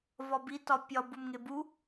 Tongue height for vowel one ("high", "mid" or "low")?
low